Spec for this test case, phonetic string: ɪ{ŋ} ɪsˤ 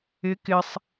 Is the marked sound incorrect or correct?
incorrect